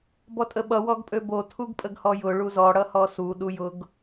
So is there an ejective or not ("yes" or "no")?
yes